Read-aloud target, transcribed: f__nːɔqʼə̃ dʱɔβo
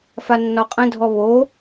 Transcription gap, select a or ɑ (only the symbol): a